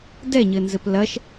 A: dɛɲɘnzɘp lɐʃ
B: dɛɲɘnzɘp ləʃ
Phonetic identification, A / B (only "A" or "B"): A